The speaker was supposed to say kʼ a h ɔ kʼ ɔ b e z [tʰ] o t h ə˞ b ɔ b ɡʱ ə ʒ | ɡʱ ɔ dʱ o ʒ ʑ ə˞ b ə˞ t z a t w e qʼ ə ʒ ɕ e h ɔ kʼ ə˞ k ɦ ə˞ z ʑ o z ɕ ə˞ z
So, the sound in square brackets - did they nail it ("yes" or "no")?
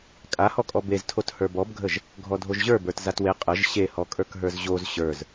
yes